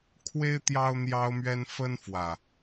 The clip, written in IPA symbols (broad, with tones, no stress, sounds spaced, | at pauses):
kʰ w e˦ ɪ̯ t̪ j ɑ˦ ʊ̯ n̪ j ɑ˦ ʊ̯ m ɥ ɛ˦ n f ə˦ n f w ä˨˩